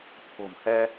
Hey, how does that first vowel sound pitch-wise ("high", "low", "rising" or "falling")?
low